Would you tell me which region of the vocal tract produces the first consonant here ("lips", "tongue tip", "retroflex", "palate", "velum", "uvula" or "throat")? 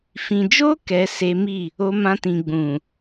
lips